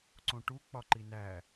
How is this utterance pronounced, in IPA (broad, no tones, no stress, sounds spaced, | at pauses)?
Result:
ǀ õ ʈ u k͡p ɒ ǃ i n æ